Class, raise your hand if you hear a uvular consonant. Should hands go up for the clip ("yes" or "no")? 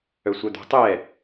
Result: no